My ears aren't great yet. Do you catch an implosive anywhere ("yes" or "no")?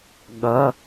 yes